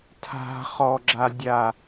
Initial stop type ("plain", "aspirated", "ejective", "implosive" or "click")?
aspirated